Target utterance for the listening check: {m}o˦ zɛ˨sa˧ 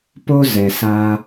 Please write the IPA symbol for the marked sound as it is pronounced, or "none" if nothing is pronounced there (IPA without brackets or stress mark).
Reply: p